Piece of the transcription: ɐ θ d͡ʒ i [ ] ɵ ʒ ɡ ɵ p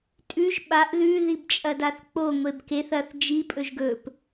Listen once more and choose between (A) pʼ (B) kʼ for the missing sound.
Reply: A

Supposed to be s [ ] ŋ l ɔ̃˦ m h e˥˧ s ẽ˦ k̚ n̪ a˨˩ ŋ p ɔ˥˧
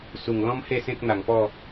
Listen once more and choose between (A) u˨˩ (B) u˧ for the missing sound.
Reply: A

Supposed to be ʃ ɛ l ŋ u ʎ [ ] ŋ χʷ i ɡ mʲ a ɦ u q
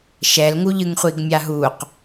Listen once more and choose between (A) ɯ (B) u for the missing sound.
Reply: A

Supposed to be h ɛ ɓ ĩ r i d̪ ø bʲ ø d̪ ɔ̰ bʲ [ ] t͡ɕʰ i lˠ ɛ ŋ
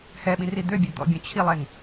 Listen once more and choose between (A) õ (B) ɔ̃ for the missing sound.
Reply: B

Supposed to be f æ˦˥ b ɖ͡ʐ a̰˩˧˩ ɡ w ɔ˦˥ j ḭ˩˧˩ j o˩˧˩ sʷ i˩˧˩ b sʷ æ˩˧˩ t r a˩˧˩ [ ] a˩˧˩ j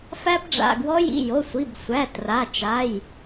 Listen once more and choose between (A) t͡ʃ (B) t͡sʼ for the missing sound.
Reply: A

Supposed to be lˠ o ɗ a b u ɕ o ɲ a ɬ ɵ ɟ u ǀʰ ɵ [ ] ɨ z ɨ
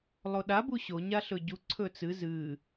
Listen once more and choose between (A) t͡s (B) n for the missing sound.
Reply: A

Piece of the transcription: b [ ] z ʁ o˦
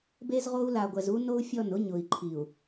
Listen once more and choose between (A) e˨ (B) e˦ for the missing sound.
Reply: B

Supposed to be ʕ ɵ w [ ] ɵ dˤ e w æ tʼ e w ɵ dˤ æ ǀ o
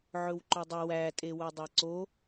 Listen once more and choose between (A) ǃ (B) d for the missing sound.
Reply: A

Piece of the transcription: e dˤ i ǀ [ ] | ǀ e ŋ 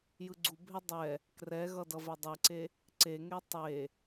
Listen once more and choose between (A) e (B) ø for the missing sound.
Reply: A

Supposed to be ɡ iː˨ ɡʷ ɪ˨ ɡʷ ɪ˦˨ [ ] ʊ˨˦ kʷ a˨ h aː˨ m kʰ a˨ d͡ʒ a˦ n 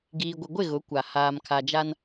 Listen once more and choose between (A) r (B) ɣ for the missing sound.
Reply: B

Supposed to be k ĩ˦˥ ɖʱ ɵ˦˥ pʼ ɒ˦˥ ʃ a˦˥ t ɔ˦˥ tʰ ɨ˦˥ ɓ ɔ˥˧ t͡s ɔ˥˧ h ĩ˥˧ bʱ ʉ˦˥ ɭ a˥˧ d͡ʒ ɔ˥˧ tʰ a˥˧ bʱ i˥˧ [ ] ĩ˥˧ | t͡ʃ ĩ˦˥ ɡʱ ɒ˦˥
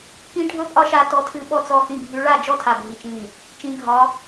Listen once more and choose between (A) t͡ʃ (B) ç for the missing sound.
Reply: A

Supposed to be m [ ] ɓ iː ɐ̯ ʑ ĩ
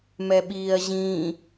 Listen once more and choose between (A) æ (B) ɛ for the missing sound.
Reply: B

